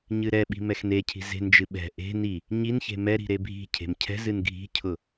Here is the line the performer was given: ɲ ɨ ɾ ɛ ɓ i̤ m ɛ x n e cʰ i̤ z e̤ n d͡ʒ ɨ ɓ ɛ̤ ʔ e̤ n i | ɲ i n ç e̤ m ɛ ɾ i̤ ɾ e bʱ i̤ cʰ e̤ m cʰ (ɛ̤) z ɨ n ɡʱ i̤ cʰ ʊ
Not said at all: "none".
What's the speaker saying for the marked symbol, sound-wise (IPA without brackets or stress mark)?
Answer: ɛ̤